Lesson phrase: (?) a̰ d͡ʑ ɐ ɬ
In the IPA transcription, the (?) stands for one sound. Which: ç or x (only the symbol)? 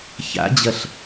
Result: ç